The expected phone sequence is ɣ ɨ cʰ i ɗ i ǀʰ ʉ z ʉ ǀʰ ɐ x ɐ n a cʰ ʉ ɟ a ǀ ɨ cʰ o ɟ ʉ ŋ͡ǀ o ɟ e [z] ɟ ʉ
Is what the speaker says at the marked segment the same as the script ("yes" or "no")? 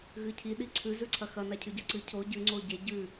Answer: no